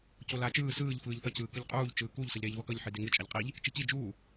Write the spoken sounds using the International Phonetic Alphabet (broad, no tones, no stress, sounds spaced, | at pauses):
c o l aː t͡ʃ ɯː s ɯː ʎ f ɯː ʎ θ ʌ c ɯː k ɯ ʎ qʼ uː ʎ t͡ʃ ɯː k u ʎ s ʌ ʎ ɾ eː ʎ v ʌ k ʌ ʎ ħ i d e ŋ ɯ t͡ʃʼ a ʎ qʼ i ʎ | t͡ʃ i c i d͡ʒ uː